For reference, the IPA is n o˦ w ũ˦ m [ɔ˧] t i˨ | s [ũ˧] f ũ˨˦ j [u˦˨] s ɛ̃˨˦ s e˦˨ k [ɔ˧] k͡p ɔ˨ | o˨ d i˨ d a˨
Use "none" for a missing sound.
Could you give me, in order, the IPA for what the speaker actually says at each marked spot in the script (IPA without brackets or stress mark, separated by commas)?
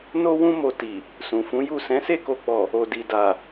o˧, ũ˨, u˦˨, o˧